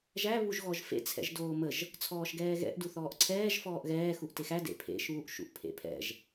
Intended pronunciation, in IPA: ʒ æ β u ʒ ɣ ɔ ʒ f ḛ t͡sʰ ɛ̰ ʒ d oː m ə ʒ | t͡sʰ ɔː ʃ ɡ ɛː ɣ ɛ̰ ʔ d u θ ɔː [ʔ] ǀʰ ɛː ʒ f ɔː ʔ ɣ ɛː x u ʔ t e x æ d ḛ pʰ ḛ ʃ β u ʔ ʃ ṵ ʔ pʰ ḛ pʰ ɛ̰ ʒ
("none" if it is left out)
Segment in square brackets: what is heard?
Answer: ʔ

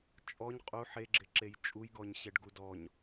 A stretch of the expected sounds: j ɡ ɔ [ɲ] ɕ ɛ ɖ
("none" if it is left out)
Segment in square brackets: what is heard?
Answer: ɲ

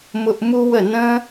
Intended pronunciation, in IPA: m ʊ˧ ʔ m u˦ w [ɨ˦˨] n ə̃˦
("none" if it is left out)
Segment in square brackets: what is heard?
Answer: ə˦˨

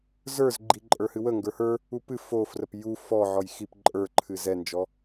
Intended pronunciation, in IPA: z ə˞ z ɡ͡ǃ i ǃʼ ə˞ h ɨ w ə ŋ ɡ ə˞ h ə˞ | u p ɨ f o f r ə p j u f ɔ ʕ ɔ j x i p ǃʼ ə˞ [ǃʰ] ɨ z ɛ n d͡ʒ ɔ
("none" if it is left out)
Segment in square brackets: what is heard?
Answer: ǃʰ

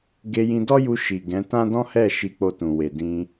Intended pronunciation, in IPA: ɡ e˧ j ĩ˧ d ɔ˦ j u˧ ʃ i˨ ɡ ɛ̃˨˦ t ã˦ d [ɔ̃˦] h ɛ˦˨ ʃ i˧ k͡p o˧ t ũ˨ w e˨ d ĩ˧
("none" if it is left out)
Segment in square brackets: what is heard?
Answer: ɔ̃˦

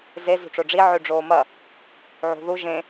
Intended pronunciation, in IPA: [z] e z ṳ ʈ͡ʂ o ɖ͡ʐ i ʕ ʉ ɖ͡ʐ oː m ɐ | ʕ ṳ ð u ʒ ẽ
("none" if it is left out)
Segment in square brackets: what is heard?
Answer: z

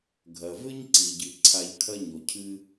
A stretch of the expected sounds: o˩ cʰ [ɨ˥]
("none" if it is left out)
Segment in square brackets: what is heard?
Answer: ɨ˥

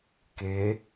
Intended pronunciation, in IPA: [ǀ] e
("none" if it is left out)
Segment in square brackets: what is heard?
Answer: k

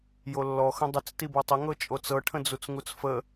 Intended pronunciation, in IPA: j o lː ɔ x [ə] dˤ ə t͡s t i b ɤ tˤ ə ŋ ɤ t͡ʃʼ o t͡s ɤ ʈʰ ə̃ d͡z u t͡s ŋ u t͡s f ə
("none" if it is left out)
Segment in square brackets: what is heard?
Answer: ə̃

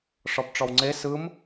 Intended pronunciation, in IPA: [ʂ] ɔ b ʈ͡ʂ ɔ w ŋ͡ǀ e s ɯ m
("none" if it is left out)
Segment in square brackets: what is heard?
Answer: ʂ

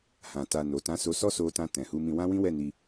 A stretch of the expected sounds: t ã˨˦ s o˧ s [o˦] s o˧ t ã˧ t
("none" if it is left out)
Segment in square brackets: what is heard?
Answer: ɔ˦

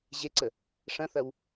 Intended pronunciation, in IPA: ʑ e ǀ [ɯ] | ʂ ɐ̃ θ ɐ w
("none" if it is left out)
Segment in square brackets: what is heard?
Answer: ə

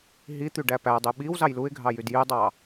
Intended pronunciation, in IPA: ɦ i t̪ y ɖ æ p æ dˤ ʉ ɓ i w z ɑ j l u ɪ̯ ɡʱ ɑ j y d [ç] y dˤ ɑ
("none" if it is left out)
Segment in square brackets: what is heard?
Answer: j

